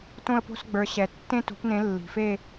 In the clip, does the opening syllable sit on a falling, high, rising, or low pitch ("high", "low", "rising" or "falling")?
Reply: falling